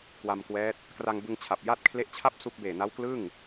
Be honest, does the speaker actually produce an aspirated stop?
yes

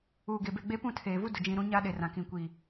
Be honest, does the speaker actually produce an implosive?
yes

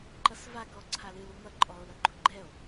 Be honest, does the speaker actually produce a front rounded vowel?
no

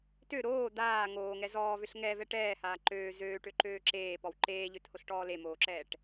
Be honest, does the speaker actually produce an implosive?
no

